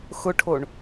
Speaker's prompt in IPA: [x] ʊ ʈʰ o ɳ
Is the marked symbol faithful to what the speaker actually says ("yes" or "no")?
yes